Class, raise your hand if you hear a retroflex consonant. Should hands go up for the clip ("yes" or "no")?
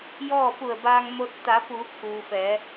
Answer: no